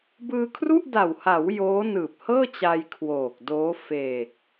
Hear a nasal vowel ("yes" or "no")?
no